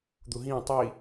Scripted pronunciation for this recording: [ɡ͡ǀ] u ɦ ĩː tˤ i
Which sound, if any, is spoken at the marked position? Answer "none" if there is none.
d̪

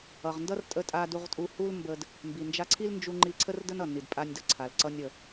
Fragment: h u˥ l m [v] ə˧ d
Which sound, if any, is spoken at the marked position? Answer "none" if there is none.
b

